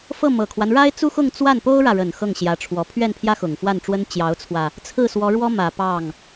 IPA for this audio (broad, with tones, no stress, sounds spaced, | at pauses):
f ɤ˥˩ m ɤ˨˩ kʰ w a˦ n ɻ a˥ ɪ̯ t͡s u˥ x ʊ˥˧ ŋ t͡s w a˥˩ n p o˥ ʊ̯ ɻ ä˨ ɻ ə˨˩ n x ɤ˥˩ ŋ ɕ j ä˧˥ ʈ͡ʂʰ w ɔ˧˥ pʰ ɥ ɛ˥˩ n pʰ j ä˥ x ʊ˨˩ ŋ f w a˥˩ n ʈ͡ʂ w ə˥ n t͡ɕ j ɑ˧˥ ʊ̯ t͡sʰ w ä˧ | t͡sʰ ɹ̩˥˩ s w ɔ˧˥ ɻ w ɔ˥ m ä˨˩ p ɑ˥˩ ŋ